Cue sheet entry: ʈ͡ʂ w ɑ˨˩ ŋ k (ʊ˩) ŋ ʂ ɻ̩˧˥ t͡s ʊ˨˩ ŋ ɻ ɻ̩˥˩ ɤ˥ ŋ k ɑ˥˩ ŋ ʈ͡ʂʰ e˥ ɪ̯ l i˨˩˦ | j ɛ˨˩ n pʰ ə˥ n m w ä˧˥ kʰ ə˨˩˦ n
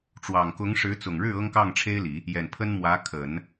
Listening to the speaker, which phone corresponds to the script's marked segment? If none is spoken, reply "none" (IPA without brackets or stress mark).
ʊ˧˥